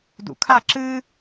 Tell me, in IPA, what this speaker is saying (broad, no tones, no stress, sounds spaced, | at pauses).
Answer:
d ṵ kʰ a ǁ ɨ